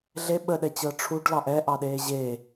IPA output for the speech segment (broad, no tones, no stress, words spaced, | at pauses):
ɮe ɓəɗɛt͡ɕɤ ʈ͡ʂʰuɖ lɑʔɛʔɑɗeː ʑe